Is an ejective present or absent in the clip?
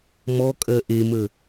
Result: present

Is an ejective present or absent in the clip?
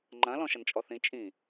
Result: present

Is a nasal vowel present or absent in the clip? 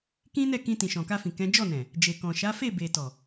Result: present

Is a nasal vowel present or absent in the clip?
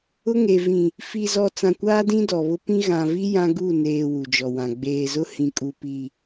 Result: present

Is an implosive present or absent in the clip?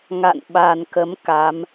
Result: present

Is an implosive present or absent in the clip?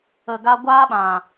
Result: present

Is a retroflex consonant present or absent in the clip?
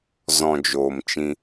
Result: absent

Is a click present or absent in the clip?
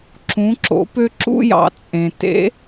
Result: present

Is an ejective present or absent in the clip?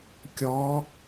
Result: absent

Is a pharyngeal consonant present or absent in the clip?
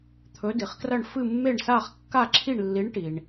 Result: absent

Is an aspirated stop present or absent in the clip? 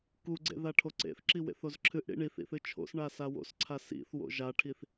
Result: present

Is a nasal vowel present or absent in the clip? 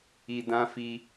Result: present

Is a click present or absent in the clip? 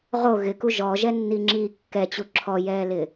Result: present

